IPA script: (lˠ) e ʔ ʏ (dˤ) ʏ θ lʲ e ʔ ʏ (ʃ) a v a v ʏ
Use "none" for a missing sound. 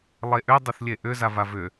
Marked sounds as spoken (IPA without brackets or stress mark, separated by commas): lˠ, dˤ, z